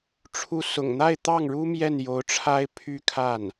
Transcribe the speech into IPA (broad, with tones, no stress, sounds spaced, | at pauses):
ʈ͡ʂʰ u˥˩ s ʊ̰˨˩ ŋ n̪ a˥˧ ɪ̯ t̪ ɑ˥˩ ŋ ɻ u˥ m j ɛ˥˩ n j o˧˥ ʊ̯ ʈ͡ʂʰ a˥ ɪ̯ pʰ y˥ kʰ a˥˩ n